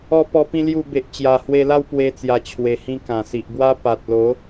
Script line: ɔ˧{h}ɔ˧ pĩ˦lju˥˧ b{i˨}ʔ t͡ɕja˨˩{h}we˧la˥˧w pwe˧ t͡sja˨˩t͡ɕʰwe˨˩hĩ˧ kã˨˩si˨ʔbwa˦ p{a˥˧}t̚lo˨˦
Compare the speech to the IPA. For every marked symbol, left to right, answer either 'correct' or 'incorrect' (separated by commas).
incorrect, incorrect, correct, incorrect